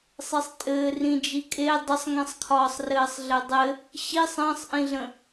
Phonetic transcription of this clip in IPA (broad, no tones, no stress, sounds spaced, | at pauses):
sˤ e sˤ tʼ ɘː r ĩ d͡ʒ i kʼ e dˤ ə sˤ ŋ ĩ sˤ kʰ ɒː sˤ r ɘː sˤ ɮ ɘ dˤ ɘ | ɕ i sˤ ə̃ː sˤ ʔ ĩ ɮ ə̃